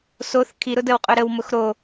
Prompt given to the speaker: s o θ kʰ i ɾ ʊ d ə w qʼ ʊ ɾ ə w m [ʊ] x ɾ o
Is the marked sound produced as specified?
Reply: yes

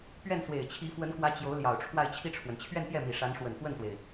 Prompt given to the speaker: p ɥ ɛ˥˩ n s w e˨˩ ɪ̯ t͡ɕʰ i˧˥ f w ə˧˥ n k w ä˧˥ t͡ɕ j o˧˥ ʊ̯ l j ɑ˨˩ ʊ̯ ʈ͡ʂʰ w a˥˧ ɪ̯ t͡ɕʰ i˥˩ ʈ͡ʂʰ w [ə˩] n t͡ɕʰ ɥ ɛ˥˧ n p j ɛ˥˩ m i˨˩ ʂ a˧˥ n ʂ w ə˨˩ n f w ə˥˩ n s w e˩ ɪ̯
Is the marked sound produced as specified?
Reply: yes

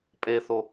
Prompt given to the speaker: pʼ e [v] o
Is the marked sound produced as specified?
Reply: no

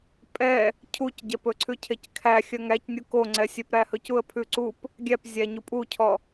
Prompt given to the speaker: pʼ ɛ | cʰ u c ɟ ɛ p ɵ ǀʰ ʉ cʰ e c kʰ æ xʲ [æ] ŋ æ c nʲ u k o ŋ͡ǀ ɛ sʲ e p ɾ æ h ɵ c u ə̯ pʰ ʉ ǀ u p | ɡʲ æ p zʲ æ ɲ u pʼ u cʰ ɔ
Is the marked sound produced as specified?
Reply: no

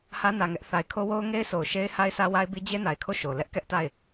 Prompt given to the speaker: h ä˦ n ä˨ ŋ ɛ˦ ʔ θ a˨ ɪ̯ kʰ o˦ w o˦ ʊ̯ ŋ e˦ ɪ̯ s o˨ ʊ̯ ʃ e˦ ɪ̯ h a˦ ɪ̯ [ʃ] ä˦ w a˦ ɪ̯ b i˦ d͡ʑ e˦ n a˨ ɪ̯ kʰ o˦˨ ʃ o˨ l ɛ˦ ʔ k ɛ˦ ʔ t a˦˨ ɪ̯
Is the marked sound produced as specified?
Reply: no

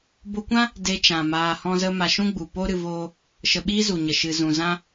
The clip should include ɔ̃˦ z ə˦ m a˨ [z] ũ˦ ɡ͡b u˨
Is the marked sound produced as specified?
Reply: no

